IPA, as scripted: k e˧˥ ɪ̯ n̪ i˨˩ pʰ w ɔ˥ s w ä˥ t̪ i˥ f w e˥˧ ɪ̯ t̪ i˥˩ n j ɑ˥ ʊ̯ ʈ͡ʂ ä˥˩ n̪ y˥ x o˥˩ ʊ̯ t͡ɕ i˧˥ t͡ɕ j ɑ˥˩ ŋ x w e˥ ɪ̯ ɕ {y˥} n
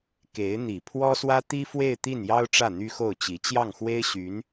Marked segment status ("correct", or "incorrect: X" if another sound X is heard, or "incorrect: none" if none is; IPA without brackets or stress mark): incorrect: y˧˥